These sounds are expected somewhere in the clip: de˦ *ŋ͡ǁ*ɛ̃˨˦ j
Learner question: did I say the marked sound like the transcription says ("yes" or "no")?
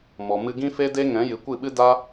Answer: no